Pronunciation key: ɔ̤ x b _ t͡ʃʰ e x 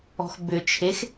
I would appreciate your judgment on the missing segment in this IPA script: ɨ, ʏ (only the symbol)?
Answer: ʏ